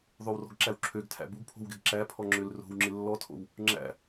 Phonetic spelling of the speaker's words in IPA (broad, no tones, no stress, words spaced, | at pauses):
ðˤowrɔ̤ɡǁæw ǁʰøɡtʰæ̰ buɡpʰo̤wɡɪɡ ǁæpʰɔŋ͡ǁøl ro̤wŋ͡ǁɪ lːɔtʰo̰w | ŋ͡ǁæ̰